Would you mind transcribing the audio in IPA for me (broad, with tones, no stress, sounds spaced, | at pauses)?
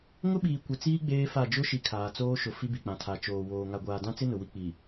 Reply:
ŋ ʊ˦ ɓ iː˨ kʷ ɪ˨ t͡s iː˦ ɡ͡b eː˦ f a˦˨ d͡ʒ ʊ˦ ʃ i˨ kʰ aː˨ t͡s oː˦ ʃ ʊ˨ f i˦ b i˨ k͡p ã˨ tʰ a˨ t͡ʃ oː˨ w oː˨ ŋ a˨ ɡʷ aː˨ d ã˦ t͡s ɪ˦ n ʊ˨ w i˦ k͡p i˨